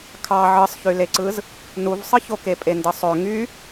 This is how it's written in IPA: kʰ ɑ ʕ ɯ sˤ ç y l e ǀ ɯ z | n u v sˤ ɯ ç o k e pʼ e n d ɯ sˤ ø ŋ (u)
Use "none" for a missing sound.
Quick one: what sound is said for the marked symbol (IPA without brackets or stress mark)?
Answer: y